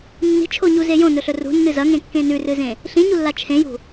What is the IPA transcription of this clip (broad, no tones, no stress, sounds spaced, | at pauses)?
nː i̤ t͡ʃʰ o ɲ u z e j õ n ɵ ɬ ɵ r ṳ nː ɨ z ɐ ŋ ẽ kː ẽ n ʉ r ɨ z ẽ | ɬ ĩ ɲ u lː a t͡ʃʰ ẽ j ṳ